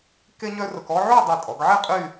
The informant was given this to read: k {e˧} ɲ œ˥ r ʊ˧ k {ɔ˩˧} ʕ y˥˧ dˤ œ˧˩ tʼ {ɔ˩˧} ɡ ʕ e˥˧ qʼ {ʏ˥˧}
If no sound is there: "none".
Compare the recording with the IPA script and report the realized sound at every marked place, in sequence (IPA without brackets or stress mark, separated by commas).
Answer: e˥, ɔ˥, ɔ˩˧, y˥˧